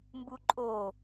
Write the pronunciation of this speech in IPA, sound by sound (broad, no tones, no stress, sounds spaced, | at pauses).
m b u ǃʼ o